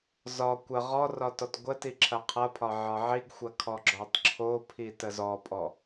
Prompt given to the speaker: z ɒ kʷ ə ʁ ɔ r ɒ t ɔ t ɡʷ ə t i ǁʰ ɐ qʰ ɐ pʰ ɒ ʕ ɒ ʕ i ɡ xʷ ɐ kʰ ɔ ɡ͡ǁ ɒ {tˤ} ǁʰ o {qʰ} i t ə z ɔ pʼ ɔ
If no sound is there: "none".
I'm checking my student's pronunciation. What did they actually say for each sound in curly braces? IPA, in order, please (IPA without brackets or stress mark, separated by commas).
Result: tˤ, pʰ